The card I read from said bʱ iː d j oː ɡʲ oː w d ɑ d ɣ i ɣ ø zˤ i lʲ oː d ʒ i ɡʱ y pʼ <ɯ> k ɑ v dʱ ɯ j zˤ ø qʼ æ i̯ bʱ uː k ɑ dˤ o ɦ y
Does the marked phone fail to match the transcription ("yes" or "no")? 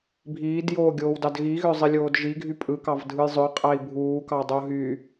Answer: no